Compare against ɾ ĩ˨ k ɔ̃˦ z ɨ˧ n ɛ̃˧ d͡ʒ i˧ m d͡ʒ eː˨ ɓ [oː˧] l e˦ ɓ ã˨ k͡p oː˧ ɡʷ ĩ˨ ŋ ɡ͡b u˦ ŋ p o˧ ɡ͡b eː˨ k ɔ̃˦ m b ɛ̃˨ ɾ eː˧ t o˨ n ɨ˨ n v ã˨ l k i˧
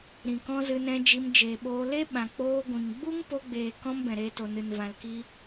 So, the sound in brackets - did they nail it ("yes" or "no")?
yes